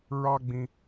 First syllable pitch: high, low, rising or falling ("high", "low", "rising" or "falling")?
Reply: high